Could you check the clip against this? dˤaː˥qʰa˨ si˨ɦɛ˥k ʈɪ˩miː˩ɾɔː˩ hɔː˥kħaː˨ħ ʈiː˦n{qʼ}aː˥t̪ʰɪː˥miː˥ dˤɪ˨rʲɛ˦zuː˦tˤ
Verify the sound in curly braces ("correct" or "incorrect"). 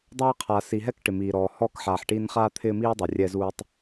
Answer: incorrect